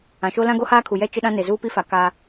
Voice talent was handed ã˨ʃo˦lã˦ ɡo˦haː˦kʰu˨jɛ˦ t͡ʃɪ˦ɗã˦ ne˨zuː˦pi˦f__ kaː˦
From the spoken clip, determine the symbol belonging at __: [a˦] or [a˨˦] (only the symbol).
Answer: a˨˦